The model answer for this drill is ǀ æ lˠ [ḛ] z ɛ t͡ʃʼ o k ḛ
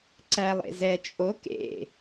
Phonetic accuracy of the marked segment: correct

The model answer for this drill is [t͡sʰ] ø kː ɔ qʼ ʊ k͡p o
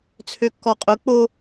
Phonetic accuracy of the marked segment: correct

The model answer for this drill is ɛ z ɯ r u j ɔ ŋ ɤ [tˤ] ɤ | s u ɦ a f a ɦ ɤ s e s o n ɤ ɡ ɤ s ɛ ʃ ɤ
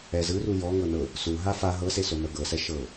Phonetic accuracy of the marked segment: incorrect: n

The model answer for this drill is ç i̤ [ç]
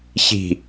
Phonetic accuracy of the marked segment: incorrect: none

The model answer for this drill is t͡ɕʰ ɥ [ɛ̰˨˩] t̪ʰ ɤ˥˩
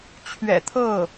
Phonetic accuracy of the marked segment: correct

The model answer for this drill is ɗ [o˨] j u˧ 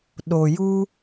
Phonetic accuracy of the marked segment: correct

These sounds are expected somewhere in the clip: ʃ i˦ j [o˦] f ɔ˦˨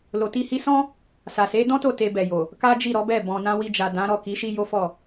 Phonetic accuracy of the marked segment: correct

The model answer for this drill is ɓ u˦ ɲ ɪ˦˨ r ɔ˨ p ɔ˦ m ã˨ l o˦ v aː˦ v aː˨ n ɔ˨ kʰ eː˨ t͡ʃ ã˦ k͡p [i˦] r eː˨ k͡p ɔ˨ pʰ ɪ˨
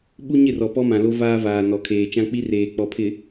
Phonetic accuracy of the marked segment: correct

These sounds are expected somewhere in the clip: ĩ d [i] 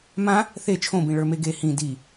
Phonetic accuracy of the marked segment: correct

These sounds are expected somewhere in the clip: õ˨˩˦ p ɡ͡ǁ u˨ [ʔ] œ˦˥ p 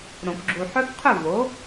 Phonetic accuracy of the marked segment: incorrect: ħ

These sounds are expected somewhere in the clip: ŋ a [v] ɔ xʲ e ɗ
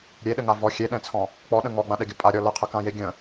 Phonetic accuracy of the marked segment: correct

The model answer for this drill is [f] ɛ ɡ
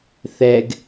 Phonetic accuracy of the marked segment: incorrect: θ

